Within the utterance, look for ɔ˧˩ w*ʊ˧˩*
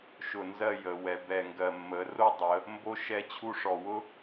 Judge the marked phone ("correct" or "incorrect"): incorrect